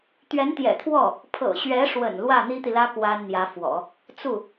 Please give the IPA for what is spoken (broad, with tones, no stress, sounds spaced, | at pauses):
t̪ ɥ ɛ˧˥ n t̪ j ɛ̰˨˩ t̪ʰ w ɔ˥˩ | pʰ ɤ̰˨˩ ɕ ɥ ɛ˧˥ ʂ w ə̰˨˩ n l w ä˥˩ n̪ i˥ t̪ i˨ l ä˥ k w a˥ n n̪ j ä˧˥ f w ɔ̰˨˩˦ | t͡s u˥˩